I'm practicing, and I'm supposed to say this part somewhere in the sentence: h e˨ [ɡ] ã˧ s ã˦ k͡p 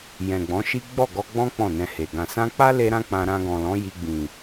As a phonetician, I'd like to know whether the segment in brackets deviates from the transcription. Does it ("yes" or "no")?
no